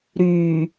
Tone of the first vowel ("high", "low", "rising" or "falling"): low